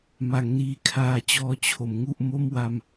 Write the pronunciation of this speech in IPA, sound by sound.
m a˩˦ ŋ n iː˨˩ kʰ aː˨˩ t͡ɕ ɔː˧ t͡ɕʰ o˩˦ m ŋ u˥˩ ʔ m o˥˩ m w a˧ m

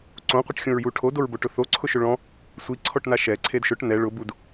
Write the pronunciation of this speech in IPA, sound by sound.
ǀ õ qʷ ɪ ʈ xʲ õ ɹ j u ʈʰ o d o ɹ b o ʈ ʊ θ o ǀʰ ʊ ʃ ʊ ɭ ɔ̃ | sʷ i ǀʰ ɔ ʈ n a ʃ ɛ ǀʰ e d ʃ ʊ ʈ n ɛ ɭ ʊ b u d

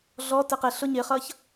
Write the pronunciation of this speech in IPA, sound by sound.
ɮ ɔ t ɪ q ɪ ɬ ʊ ɲ ɪ χ ʌ ç

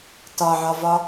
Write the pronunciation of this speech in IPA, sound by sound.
t ɒ ʕ ɒ v ɒ

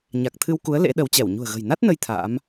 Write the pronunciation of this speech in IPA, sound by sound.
ɲ a˨˩ k̚ t̪ʰ ɨ˧ w k u˨˦ ə̯ l ḛ˧˥ ɗ ə˨˦ w t͡ɕ ɛ˧˩ w ɲ ṳ˨˩ ə̯ ɣ ə̤˨˩ j n a˦˥ t̚ n ə˧ j t̪ʰ a̰ː˧˥ m

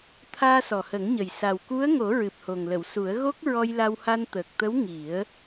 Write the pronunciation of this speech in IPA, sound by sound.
t̪ʰ aː˧ s ɔ˨˩ h ə˨˩˦ ŋ ɲ ə˨˩ j s a˨˩ w k u˧˥ ə̯ ŋ o˨˩˦ ɹ ɨ˨˩ p̚ h o˨˩ ŋ l ə˨˩˨ w s u˨˩˦ ə̯ ɣ o˦˥ k̚ ɹ ɔ˧ j l a˧ w h a˧ n t̪ əː˨˩ k̚ t̪ ə˧˥ w ŋ i˨˩˦ ə̯

